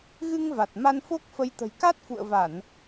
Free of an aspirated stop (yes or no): yes